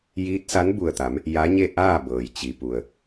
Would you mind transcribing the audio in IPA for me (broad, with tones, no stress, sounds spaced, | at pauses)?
j iː˧˥ t̚ s a˧˥ n b u˧˩ ə̯ t̪ a˩˧ m | j a˧˥ ɲ e˥˨ ʔ aː˥˨ b ɤː˩ j t͡ɕ i˩ p u˩ ə̯